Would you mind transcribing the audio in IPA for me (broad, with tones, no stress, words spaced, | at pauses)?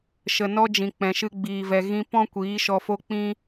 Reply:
ʃə˨ nɔ˦d͡ʒĩ˨k͡pɛ̃˨ʃɨ˧ ɡ͡biː˨vɛ˨ ɣĩ˦ pɔ̃˦ kʷiː˨˦ʃɔ˧fo˦k͡pĩ˦